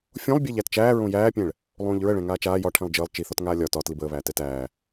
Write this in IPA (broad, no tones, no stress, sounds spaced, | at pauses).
fʲ õ lˠ bʲ æ ʎ æ t t͡ʃ æː ɹ õ j æː pʲ ɛ̃ ɭ | lˠ õː ʎ ɹ ə ɭ ɛ̃ ŋ aː t͡ʃ aː j ɒ ʈʰ ɛ̃ lˠ d͡ʒ əː lˠ t͡ʃ i θ ɒ t ŋ aː lʲ ɒ t ɒ t l i b əː β æː t ɛ t æː